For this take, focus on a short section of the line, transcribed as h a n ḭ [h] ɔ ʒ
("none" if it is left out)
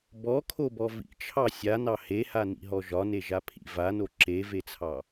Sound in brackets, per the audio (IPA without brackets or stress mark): ɦ